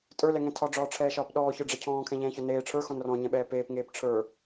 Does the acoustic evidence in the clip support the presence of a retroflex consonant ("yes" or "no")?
yes